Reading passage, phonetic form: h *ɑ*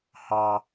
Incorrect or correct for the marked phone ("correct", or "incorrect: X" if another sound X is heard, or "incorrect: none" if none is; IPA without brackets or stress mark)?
correct